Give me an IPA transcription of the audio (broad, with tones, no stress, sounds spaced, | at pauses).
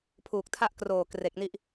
pʰ uː˨˩ k̚ tʰ a˥˩ ʔ k r oː˨˩ k r e˨˩ k̚ n i˥˩ ʔ